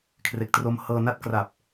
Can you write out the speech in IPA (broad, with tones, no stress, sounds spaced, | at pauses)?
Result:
kʰ r e˨˩ k̚ t r o˧ m h ɤː˧ n a˥˩ t̚ k r a˨˩ p̚